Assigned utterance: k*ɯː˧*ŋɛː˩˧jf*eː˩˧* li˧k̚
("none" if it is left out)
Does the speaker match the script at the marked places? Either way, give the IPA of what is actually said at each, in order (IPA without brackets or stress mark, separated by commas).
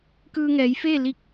ɯː˧, eː˥˨